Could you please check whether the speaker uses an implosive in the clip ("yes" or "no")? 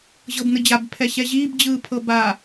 no